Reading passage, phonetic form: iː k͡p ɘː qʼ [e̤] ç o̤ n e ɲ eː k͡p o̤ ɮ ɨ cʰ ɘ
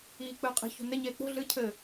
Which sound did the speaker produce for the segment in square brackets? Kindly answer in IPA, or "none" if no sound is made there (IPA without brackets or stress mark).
i̤